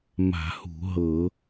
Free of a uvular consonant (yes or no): yes